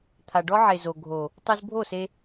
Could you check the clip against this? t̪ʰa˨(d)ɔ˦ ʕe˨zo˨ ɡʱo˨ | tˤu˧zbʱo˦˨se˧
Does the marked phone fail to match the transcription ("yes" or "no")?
yes